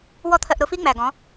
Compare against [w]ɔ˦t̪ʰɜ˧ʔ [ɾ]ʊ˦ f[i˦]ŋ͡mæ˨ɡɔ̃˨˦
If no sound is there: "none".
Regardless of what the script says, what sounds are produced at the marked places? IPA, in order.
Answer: w, ɾ, i˦

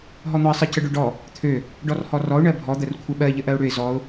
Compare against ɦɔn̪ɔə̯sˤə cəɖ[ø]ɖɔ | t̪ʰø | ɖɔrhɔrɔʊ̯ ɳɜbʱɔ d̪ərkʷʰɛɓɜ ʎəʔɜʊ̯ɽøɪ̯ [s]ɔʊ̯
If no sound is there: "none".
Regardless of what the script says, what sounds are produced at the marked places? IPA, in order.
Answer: ø, z

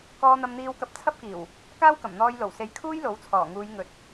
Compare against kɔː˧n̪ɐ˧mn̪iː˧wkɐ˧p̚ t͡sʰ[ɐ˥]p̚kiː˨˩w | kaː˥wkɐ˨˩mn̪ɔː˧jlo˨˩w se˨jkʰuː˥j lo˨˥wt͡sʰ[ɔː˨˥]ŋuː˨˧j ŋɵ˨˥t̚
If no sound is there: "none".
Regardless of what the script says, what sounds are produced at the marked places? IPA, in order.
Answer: ɐ˥, ɔː˨˩

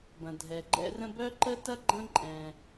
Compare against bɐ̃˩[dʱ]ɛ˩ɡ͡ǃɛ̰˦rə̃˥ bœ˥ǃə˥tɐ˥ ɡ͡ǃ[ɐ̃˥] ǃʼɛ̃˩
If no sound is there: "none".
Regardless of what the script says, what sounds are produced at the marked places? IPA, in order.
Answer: dʱ, ɐ̃˦

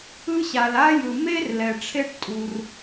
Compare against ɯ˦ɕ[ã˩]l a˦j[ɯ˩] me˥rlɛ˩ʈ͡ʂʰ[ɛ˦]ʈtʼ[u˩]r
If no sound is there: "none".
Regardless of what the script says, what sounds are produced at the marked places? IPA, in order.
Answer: a˩, ɯ˩, e˦, u˩

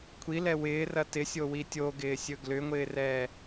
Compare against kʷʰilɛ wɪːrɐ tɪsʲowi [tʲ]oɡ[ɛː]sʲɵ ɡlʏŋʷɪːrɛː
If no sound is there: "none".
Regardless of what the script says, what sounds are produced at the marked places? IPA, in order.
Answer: tʲ, ɪː

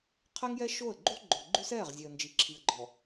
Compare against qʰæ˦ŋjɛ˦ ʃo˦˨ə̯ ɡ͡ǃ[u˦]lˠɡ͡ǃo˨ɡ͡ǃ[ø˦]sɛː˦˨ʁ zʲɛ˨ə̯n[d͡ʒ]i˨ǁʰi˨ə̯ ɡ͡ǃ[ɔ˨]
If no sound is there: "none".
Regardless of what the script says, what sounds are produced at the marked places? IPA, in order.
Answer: u˦, ʉ˦, d͡ʒ, ɔ˨

